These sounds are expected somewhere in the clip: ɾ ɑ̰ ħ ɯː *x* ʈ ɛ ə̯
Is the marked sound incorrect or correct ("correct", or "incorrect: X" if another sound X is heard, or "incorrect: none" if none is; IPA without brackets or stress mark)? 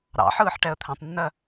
incorrect: ħ